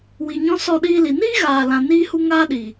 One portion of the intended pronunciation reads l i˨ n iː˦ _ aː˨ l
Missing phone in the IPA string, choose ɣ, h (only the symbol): ɣ